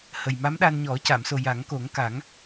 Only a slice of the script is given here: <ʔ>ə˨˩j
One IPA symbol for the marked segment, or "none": h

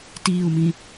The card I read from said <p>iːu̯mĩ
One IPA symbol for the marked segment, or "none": t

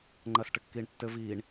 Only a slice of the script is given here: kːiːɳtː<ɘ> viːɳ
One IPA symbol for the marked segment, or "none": ɘ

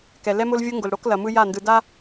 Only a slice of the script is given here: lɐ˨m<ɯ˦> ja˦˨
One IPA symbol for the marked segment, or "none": ɯ˦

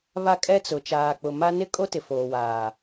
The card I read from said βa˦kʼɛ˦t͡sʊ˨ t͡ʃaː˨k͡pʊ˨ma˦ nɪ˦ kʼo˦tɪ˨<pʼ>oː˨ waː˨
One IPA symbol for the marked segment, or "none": f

